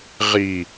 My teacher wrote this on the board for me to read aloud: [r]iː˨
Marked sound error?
yes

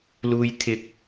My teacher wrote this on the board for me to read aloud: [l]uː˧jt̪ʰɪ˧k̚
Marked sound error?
no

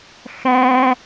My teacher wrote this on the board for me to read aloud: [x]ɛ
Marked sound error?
no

